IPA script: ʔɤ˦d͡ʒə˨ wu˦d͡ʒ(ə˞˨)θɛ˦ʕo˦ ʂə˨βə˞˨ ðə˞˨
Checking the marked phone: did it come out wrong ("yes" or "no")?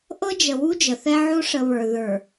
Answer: yes